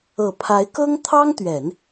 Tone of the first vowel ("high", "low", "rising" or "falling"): low